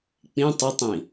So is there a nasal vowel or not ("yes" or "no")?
yes